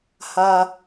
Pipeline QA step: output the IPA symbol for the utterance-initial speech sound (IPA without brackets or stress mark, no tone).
h